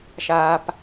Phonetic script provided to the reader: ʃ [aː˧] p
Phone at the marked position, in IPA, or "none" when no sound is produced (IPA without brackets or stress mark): aː˧